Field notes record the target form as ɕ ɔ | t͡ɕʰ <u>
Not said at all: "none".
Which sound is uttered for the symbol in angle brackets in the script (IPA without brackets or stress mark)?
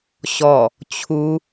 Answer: u